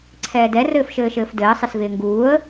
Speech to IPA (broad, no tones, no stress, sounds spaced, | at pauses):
ǀʰ ɛː d ɛ r ɘː f ʃ ɘː ʃ ɘː f d ɘː sˤ ɪ s v ɪː ŋ ɡ uː ə̯